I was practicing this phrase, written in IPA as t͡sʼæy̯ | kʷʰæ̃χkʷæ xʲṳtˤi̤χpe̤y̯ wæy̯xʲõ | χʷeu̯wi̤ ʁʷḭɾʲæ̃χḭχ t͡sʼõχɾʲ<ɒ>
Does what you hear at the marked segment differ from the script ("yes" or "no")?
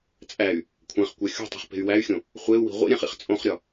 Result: no